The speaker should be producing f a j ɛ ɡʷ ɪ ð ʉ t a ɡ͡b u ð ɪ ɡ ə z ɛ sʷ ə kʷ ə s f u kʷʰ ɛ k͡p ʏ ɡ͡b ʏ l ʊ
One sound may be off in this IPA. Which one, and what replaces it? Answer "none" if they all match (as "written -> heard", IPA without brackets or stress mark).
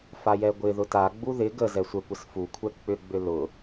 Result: ʉ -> ʊ